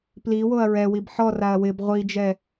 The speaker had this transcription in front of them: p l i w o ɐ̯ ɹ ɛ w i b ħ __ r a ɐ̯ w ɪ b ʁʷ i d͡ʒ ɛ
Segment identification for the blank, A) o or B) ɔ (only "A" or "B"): B